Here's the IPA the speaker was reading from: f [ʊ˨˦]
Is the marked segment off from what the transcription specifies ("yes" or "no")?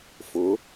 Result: no